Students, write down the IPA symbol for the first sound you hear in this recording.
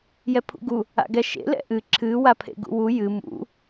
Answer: j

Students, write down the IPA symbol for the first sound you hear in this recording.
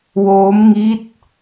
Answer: w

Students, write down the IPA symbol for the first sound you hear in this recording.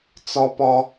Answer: t͡s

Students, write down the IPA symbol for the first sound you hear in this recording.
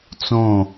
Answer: t͡s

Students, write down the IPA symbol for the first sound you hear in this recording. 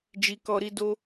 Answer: d͡ʒ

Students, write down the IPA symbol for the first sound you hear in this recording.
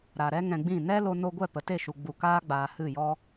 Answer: ɾ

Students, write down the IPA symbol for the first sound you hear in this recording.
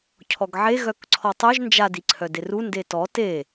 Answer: cʰ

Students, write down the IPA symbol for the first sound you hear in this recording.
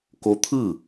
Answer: k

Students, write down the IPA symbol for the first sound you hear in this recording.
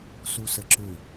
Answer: s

